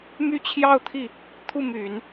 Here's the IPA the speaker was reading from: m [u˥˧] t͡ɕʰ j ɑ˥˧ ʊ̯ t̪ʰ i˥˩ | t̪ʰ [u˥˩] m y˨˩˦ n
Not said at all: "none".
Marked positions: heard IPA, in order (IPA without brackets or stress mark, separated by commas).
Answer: y˥˧, u˥˩